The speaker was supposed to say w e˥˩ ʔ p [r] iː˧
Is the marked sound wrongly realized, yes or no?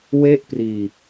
no